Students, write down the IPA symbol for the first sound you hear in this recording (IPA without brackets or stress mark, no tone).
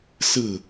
s